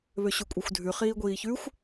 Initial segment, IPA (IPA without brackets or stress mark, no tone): β